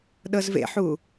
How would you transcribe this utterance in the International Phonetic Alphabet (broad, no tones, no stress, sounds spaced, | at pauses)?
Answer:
ɗ ɤ z v ḛ ħ u